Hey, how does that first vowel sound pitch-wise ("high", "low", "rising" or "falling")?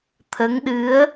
rising